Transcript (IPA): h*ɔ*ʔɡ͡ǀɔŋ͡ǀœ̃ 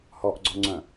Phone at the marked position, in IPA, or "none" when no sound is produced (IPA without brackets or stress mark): ɔ